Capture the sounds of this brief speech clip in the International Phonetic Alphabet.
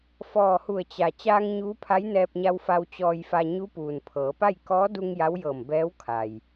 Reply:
f ɔː˧˩ h u˧˩ ə̯ t͡ɕ a˩ t͡ɕ aː˧ ŋ ɲ uː˧˥ pʰ a˧˥ j n ɛː˧ p̚ ɲ a˧ w f a˧ w t͡ɕ ɔː˧ j f a˧ ɲ u˧˥ p uː˩ n pʰ ɤː˩˧ p a˥˨ j k ɔː˧˥ d u˧ ŋ j a˧˥ w j ɤː˧˩ m b ɛː˧˥ w kʰ a˩ j

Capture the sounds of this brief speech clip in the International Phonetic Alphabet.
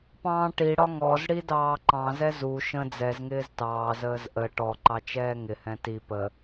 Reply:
p ɑ̃ː ʈ i ɽ ɒ ŋ ɔ z ɽ i d ɑː ǃ ɑ̃ z ɛ z u ʃ ə̃ d͡z ɛ z ŋ ɪː z t ɑː z əː z ʔ ə ʈ ɔ ǃ ɑ t͡ʃ ɛː ŋ ɪ h ɛ̃ t i p ə

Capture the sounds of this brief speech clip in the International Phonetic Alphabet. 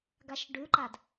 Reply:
ɡ a ʃ ɖ ʉ ǃ a d

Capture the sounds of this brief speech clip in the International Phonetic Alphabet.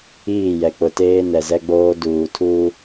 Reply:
iː˦˨ j ɛ˨ k͡p ʊ˨ t eː˦ n ɛ˨ z ɛ˦ ɡ͡b oː˦ d uː˨ tʰ uː˦

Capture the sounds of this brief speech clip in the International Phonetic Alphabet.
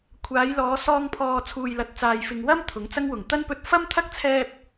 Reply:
kʷʰ aː˨˧ j l ɔː˨˧ s ɔː˧ ŋ pʰ ɔː˨ t͡sʰ uː˨ j l ɐ˨ t̚ t͡s aː˨ j f ɪ˨ ŋ w ɐ˥ m t̪ʰ ʊ˨˥ ŋ t͡s ɐ˥ ŋ w ʊ˨˩ ŋ t̪ ɐ˥ n p ɵ˧ t̚ f ɐ˥ m t̪ʰ ɐ˥ k̚ t͡sʰ ɛː˧ p̚

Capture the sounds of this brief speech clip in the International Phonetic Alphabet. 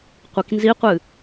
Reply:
qʷ i k n z i qʷ ɨ

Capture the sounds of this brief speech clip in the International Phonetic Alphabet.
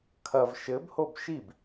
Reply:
kʰ ɐ v ʃ ɘ b h o b ʃ i b

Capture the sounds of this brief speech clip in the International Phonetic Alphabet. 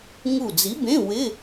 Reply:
ŋ u˧˩ d͡z i˨˥ b ẽ˧˥˧ w ɪ˧˥˧

